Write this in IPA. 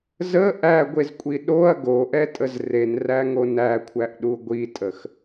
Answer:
z ə ʔ æ ɡʷ e z kʷʼ i ɗ o ɐ̯ ɡ o ʔ ɛ tʼ ə z r e n r æ ŋ o n æ kʷʰ æ ʔ ɗ u ɡʷ i tʼ ə x

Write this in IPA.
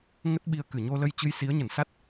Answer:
ŋ ə˦˥ t̚ ɓ i˧ ə̯ k ɨ˧˩ ɲ o˧ l ə˧ j t͡ɕ ɨ˧ j s i˨˦ ə̯ ɲ ə˧˩ n s a˦˥ t̚

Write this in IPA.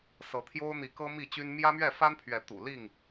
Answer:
s ɤ˨˦ t̪ʰ j o˦ ʊ̯ n̪ i˨˦ k ɤ˦ m i˥˨ t͡ɕ y˦ n m j ä˦ m ɥ ɛ˥˨ f a˦ n pʰ ɥ ɛ˨˦ t̪ ṵ˨˩ l i˥˨ ŋ

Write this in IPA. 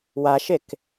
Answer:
w a ʃ e k

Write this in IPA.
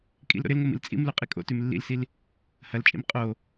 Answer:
kʼ ḭ l ɾ o̰ ɾ ɪ l ŋ o m ḭ l t͡sʼ ḭ m l u qʼ i kʼ o̰ t ʉ m lː ḭ l s i l | h ɐ l t͡ʃʼ ḭ m qʼ o

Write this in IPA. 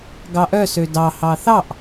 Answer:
ɡ ɑ ʔ œ s ø d ɑ h ɑ θ ɑ ʔ

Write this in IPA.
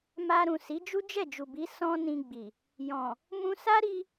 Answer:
m a˧ ɾ ũ˨ s i˨˦ d͡ʒ u˦ d͡ʒ ɛ˦˨ d͡ʒ u˨ b i˨˦ s ɔ̃˦ n ĩ˧ ɡ͡b i˨ | j ɔ̃˨ | m ũ˧ s a˦ ɾ i˧

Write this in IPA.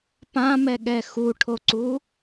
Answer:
p ã m ɛ ɠ ɛ x u ʈʰ o ǀ u

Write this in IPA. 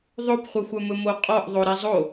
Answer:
ðˤ o p χʷ œ xʷ œ m ɵ m o qʼ ɔ ʔ ðˤ o ɾ i zˤ o

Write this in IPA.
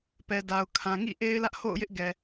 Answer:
p ɛ˨ d a˨ ʊ̯ kʰ ã˨ ŋ ḭ˦˨ ʔ e˦ ɪ̯ l ä˦ ʔ h o̰˦˨ ʊ̯ j ɪ˦ ʔ ɡ ɛ˨

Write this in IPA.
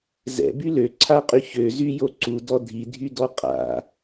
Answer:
z ɛ̰ b y l ø ǀʰ a qʼ y ç ø z y j o ǀ u d ɔ dʱ i dʱ y d ɔ qʼ a̰

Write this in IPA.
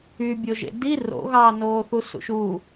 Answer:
y bʲ o ʒ ḛ d i r o̰ ɣ ɑː n oː θ u s ṵ ʃ u

